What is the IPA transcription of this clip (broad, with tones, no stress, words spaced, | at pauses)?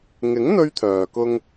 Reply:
ŋɪ˨˥ŋ n̪ɵ˥ɥt̪ʰœː˨kʊ˥ŋ